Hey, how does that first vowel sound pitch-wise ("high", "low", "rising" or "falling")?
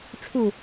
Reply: low